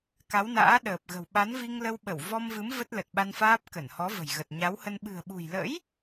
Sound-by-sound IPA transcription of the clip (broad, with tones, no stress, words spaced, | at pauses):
ka˨˦wna̰ː˧˥ ɗəː˨˩p̚ɣə̤˨˩w ɓa˨˦nvi˧ŋlə˧wɓə˧˩w vɔ˧mvɨ˨˦m və˦˥t̚lə˨˩t̚ɓa˧nfaː˦˥p̚ kə˧˩nhɔ˨˦və̤˨˩jɣə˨˩t̚ ɲa˨˦whə˧n ɓɨ̤˨˩ə̯ɓṳ˨˩jlə̰˧˥j